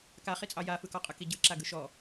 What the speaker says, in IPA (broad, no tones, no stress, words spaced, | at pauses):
kaχit͡sʼɑ jafɯkɔqʼɯ kiɟɯ ǁaɡɯʃɔ